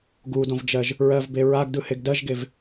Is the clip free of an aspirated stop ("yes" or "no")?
yes